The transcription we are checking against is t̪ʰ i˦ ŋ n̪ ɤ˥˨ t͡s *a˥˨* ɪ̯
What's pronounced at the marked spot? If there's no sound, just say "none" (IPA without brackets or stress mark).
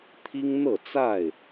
a˥˨